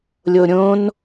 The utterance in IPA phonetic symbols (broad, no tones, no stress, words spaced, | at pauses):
lʲoɾʲõn